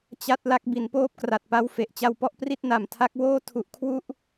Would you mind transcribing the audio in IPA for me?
t͡ɕa˥˩t̚ la˥˩k̚ bi˩˦npoː˦˥p̚kra˨˩t̚pa˧w fe˨˩ʔt͡ɕa˧wpɔ˥˩ʔ pri˥˩t̚na˨˩mtʰa˦˥k̚woː˥˩ tʰu˦˥ʔ kʰwu˥˩ʔ

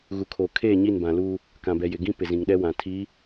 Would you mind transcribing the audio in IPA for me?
ɣu˨kʰoː˨ kʰeː˦˨ɲi˦˨nbã˨luː˦ | kã˨bɛ˨ jɪ˨ɡĩ˦ pɪ˨zĩ˨ŋɗɛ˦ wã˨ tʰiː˨˦

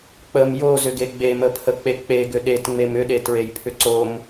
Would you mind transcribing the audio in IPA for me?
k͡pəm jozʏɡe ɡ͡beməpʰək͡pe k͡peɡʏ ɗetŋ͡mem ʏɗetɹejpʰʏ ǀom

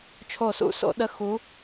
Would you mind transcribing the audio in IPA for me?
t͡ʃʰo˧˩sṵ˧˩so̰˧˩˧ ɗə˧˥˧ xu˨˥

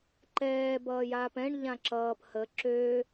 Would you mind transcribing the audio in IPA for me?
ǃɛː bʌːjaːpɛ̃ɳ ʎãǁʌːp hə ǁø

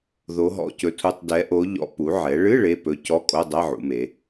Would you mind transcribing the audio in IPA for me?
ðo˧˥ɦɔ̰˧˥˧cɵ˧˥tʰu˧˥˧tˤ dɛ˧˥ʔo˧˥ʎɔ̰˧˥ pu˩˧ʕɛ˩˧ɭɨ˧˥˧ ɭe˧˥˧pɵ˧˥ cɔ˧˥˧kʼo˧˥˧dˤɛ˧˥˧ ʕṵ˩˧me˩˧

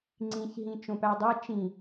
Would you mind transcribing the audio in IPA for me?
ŋ͡ǀĩçɦĩ t͡ʃõpædˤæ t͡ʃĩ

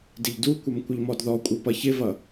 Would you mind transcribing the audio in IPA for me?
dɪʎdukʷʌm kʷɪʎmɔdðɔkʷʼɤ pʌçɪvʌ

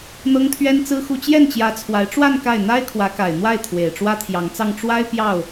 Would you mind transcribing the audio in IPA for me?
n̪ɤ˥ŋt̪ʰɥɛ˥nt͡sɹ̩˥xu˥˧ t͡ɕjɛ˥˩nt͡ɕjä˧˥t͡sʰwa˧˥ɪ̯ʈ͡ʂwa˥˧n ka˥˩ɪ̯ n̪a˥ɪ̯kʰwä˧˥ka˨˩ɪ̯n̪wa˥˩ɪ̯ t̪ʰwe˨˩ɪ̯ʈ͡ʂwä˥t̪ʰjɑ˧˥ŋt͡sɑ˥˩ŋ ʈ͡ʂwa˥ɪ̯ pjɑ˥˩ʊ̯

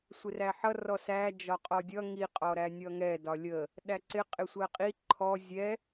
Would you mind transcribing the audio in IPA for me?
sʷɪræħʌ rɔsæ d͡ʒɒqʼɔdʲʌ ŋi qʼɔɾænʲʌŋɛ dɒlʲə | ɗæǀɪ qʼɪsʷɜqʼi ǃʰɔ zʲɛ

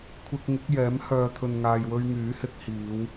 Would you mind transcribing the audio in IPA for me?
kʷʰɪ˧k̚ŋɪ˨˥k̚jɛː˨˥m hœː˨t̪ʰɵ˨nŋaː˨jwɵ˧ɥ ŋyː˨˥hɪ˨˥k̚hiː˨˧w

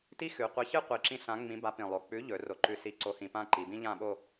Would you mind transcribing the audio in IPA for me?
ti˥xʉ˩˧qʷi˨˥çɨ˥ qʷi˨˩ǁĩ˧ ɬã˨˥ ŋ͡mĩ˨˥ba˨˥pĩ˨˩lˠo˨˩ k͡pʉ˨˥ʎɵ˩˧ ro˨˩ǃʉ˧ si˧ ǀo˨˥hĩ˨˩pã˥˧ ǃi˩˧bĩ˥ʎã˥˧ɓo˥˧

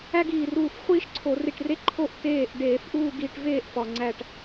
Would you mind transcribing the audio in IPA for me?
æ˥ɡiː˧˩ruː˧˩f χʷiː˥ʃǀʰo˧˩˧ri˧˩ʈre˥˧ ǃʰo˥˧ʔ teː˧˩ʔ ɖeː˧˩˧fʔuː˥˧ɡiː˧ʈveː˥˧ʔ fɒ˩ŋ͡ǀæ˧˩ʈ

